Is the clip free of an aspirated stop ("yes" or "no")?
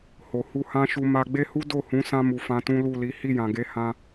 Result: yes